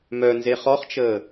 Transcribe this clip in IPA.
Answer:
m œ n z e χ ɔ χ t͡ʃ əː

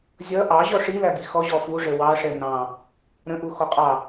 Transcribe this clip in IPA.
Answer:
zʲ ʌ ʔ ɑ ʑ ɔ ʂ i l æ b i x ɔ ʑ ɔ f u ʐ ə w ɑ ʂ ɛ n ɑ̃ | ɾ ə̃ ʔ u x ɔ qʼ ɑ

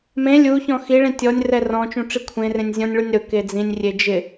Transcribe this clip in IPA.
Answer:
m ẽ lʲ u ç ɔ̃ x i ɭ ĩ tʲ ɔ nʲ r ɛ r ɔ̃ t͡ʃ ũ ʈ͡ʂ i kʷʰ ẽ r ẽ nʲ zʲ ɔ̃ nʲ ɭ u nʲ ɾ ʊ k e d͡z ĩ nʲ rʲ e d͡ʒ ɪ

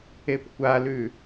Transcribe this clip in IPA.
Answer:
e p kʷ a l ʉ

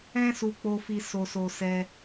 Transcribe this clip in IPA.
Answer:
ɛ̃˦ s u˧ k͡p o˧ f i˧ s o˧ s o˧ s ɛ˧

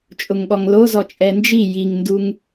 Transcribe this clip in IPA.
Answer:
t͡ʃʼ ʊ ŋ ɠ ɔ ŋ l o z ɔ t͡ʃʼ ɛ n d͡ʒ i j i ŋ n d u ŋ

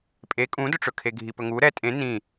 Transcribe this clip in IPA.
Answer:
pʼ e kʼ ũ d ɵ ʈ͡ʂ ɵ kʰ e ɡʱ i p ɵ ŋ u ɾ ɛ tʼ ẽ n ĩ

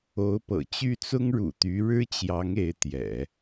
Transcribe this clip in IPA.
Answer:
o˧˥ ʊ̯ p ɤ̰˨˩ t͡ɕ y˥˩ t͡s ʊ˥ ŋ ɻ ṵ˨˩ t̪ y˧˥ ɻ ɻ̩˥ t͡ɕ j ɑ˧˥ ŋ e˧˥ ɪ̯ t̪ j ɛ̰˨˩˦

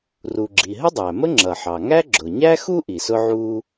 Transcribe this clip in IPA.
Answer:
r u˩ ɡ͡ǁ i˩ ɦ ə˥ dˤ æ˩ m ə˥ ŋ͡ǁ ʌ˩ ħ ɑ˩ ŋ æ˥ ɡ͡ǁ ʊ˩ ɲ æ˥ x u˥ ʔ i˩ s ʊ˥ ʕ uː˥

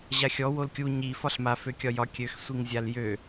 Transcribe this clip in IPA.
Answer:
ʑ a xʲ ɔ w o l kʲ u ɲ i f ɒ ɬ m a f ø kʲ ɒ j ɒ kʲ ø x sʷ i ŋ zʲ a l j ø

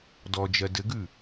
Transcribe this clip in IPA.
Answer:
d ɔ d͡ʒ ɜ d ɘ ɡ ʉ

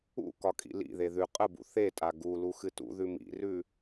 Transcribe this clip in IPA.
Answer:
ṵ k ɒ kʼ ḭ l ḭ ð e ð ʉ qʼ ə b ṵ θ e tʼ a ɡ u l u x ɨ t ṵ ð ʉ m ḭ r ʉ

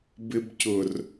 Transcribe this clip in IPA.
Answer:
b ɪ b c ʊ r

